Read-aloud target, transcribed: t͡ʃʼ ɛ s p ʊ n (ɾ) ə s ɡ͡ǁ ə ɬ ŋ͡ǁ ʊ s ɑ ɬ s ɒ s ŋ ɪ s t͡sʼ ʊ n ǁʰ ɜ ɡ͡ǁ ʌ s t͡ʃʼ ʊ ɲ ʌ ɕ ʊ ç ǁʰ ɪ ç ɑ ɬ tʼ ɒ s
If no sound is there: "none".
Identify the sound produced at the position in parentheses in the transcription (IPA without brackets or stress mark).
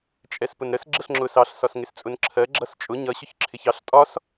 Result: ɾ